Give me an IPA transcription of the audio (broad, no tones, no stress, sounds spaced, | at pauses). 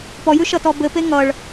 p ɔ j ʉ ʃ ʌ t ɔ b ɘ p e ŋ ʌ ɭ